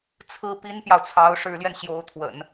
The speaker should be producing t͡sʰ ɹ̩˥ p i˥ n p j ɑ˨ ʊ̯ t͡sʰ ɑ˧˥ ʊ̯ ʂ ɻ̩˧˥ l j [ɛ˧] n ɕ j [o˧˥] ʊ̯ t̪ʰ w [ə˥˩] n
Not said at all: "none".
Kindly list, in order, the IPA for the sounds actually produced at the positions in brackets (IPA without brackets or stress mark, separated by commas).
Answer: ɛ˧, o˧˥, ə̰˨˩˦